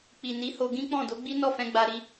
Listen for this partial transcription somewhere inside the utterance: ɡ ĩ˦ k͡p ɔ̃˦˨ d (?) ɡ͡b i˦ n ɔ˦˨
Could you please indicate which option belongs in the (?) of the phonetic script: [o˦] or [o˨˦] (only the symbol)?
o˨˦